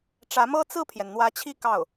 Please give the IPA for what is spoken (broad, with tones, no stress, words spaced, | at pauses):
ʈ͡ʂä˧˥mɤ˥ t͡sɹ̩˥˩pʰjɛ˩n n̪wä˧˥t͡ɕʰi˥˧ kɑ˥˩ʊ̯